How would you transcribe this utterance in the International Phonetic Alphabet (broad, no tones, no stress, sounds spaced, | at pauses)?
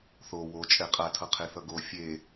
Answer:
θ o w o t͡ʃʼ ɛ qʼ a tʰ ʌ qʰ e θ ʌ ɡ o fʲ e